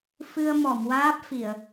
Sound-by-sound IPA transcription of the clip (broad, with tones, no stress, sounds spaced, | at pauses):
f ɨ˧ ə̯ m ɔ˨˩˨ m w aː˦˥ p̚ f i˨˩˨ ə̯